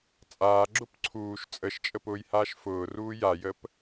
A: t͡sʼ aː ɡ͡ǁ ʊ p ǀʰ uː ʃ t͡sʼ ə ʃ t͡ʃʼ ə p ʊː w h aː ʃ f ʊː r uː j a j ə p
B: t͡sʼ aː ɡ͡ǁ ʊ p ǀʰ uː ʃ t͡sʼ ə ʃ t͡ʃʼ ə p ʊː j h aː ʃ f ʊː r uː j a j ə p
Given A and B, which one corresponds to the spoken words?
B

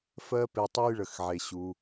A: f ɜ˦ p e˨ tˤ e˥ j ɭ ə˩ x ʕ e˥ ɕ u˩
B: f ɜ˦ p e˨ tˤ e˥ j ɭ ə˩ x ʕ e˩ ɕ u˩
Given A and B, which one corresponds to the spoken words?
B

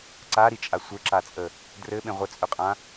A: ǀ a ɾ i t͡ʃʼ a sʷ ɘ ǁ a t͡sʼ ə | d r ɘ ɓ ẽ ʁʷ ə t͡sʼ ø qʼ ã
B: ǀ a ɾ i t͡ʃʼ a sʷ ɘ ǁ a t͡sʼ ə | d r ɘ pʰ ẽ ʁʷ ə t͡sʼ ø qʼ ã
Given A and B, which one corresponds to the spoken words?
A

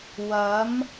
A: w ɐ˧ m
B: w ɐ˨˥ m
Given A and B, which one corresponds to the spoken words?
B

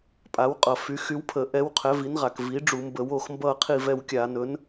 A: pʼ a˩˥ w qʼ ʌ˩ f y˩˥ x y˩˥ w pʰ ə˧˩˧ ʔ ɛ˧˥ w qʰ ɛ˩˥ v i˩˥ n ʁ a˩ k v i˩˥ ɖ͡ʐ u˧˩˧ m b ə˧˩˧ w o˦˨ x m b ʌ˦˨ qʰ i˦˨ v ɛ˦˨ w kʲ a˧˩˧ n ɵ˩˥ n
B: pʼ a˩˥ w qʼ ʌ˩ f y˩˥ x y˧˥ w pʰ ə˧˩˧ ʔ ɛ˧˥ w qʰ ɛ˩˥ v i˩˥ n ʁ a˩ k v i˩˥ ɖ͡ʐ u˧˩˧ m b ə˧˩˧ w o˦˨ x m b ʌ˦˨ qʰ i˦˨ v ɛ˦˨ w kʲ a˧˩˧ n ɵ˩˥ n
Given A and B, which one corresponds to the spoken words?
B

